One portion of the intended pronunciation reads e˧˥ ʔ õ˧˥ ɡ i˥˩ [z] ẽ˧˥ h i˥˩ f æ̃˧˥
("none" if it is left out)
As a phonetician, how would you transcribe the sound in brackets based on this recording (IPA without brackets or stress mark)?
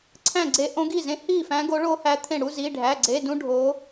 z